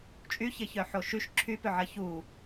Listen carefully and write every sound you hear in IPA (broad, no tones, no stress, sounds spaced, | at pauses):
t͡ʃʼ y ç ɪ ç œ ħ o ʃ y ʃ ǁʰ y p ʏ ʕ ɐ ç u